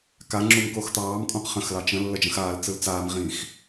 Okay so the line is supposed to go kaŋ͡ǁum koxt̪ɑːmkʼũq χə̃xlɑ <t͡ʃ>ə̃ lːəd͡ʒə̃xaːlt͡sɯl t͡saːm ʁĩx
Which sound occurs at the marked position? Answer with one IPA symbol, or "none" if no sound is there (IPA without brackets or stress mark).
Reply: t͡ʃ